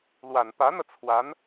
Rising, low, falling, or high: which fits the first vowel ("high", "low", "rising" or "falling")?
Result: low